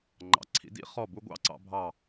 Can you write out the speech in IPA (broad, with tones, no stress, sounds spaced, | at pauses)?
ŋ͡ǃ ɑ̰˩˧ ǀʰ ḭ˩˧ d ḭ˥ χ ɔ˧˩ b u˧ ɡʷ ɑ̰˥ ǀ ɑ̰˧ bʱ ɑ˧˩